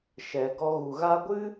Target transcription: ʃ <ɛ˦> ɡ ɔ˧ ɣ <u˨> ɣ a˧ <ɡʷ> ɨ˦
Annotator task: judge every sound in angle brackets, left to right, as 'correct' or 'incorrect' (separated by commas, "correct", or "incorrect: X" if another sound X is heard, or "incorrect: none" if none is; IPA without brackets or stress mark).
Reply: incorrect: ɛ˨, correct, correct